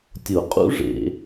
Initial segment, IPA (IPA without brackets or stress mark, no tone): tʲ